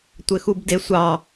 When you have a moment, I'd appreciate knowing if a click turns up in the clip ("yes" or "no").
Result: no